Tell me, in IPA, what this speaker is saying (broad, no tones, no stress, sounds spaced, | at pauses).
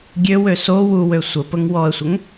ɡʲ ø w ø s o w u w ø sʷ ə p ə ŋ w ɔ ə̯ sʷ ə ŋ